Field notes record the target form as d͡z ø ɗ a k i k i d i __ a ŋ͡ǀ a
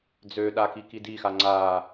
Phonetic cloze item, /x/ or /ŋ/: x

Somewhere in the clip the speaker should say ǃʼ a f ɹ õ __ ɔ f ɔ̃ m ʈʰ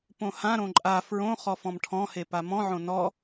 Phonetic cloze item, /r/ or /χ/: χ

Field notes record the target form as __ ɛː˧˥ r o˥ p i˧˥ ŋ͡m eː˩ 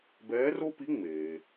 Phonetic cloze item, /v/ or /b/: b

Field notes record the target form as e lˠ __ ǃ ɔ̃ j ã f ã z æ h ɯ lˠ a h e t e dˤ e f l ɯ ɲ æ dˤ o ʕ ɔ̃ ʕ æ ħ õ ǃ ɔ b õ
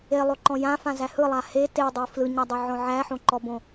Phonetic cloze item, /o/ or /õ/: o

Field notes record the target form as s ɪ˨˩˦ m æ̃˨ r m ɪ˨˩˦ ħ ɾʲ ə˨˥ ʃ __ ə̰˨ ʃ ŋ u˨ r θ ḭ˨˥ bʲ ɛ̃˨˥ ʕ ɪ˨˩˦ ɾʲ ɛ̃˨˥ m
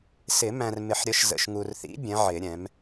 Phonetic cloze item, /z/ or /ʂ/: z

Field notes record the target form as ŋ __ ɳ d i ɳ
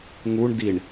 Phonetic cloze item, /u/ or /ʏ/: u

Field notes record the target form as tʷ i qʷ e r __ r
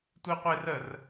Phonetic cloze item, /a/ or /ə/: ə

